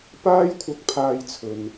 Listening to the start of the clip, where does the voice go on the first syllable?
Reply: high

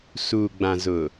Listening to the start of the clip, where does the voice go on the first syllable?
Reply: low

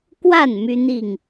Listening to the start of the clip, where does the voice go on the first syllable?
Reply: falling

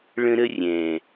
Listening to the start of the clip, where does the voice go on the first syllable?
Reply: high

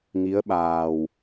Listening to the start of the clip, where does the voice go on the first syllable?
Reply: rising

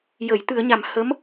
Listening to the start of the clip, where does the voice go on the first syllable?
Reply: low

